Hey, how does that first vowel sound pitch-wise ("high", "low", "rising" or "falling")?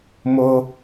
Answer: high